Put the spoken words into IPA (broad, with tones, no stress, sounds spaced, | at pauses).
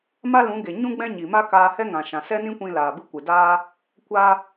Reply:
m a˦ l ũ˨˦ ɡ e˨ ɲ ũ˦ ɡ͡b ɛ̃˦ ɲ i˨ m a˦ k aː˧ h ɛ˦ ŋ ã˨ ʃ ã˨ s ɛ˦ n ĩ˦ kʷ ĩ˧ l aː˨ b ɨ˧ kʷ ɨ˨ d aː˦ | kʷ a˧